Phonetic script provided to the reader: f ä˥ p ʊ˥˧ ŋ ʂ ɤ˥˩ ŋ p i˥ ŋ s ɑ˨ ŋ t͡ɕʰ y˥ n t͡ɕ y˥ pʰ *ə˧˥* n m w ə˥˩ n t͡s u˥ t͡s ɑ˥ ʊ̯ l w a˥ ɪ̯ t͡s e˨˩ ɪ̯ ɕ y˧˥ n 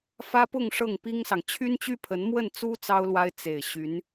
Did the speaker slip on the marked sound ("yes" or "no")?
no